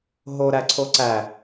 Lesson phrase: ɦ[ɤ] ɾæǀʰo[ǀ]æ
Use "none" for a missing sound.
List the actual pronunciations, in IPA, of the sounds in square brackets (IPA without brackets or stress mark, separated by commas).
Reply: o, ǀ